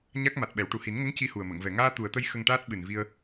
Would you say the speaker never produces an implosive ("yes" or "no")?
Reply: no